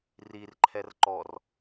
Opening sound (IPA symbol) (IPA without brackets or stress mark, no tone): r